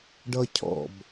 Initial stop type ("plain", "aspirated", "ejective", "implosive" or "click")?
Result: plain